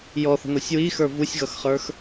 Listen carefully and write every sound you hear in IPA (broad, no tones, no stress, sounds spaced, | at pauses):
j ɔ θ ə̤ n ɔ sʲ w i x ə˞ v u sʲ ɣ ʌ x χ ə˞ x